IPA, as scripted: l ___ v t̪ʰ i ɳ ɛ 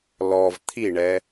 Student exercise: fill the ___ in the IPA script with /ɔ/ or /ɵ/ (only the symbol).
ɔ